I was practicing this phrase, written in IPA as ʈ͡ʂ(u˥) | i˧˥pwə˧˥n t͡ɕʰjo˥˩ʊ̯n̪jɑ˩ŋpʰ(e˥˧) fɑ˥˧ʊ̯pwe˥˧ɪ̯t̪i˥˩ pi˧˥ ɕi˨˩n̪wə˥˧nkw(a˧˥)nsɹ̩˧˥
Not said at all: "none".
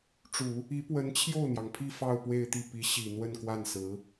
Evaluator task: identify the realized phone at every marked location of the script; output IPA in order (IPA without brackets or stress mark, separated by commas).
u˨˩˦, i˥˧, a˥˩